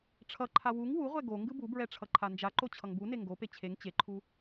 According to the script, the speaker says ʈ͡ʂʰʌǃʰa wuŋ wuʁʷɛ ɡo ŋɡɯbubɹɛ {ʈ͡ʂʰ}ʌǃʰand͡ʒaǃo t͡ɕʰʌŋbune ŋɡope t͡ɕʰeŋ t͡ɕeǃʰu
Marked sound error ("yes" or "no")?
no